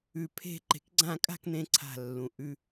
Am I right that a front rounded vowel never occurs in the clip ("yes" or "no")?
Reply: yes